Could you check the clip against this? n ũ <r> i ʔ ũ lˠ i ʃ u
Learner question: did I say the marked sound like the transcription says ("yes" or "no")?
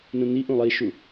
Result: no